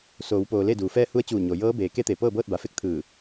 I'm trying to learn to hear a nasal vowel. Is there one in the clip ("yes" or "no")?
no